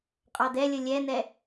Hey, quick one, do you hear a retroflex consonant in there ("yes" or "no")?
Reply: no